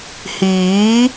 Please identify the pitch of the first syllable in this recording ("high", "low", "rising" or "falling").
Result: rising